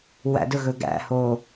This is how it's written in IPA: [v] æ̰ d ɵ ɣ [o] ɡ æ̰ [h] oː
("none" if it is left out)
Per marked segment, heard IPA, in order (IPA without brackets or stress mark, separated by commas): w, ɵ, h